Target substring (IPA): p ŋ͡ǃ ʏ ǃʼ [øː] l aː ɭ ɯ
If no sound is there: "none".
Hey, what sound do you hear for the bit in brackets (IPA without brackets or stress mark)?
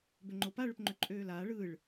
øː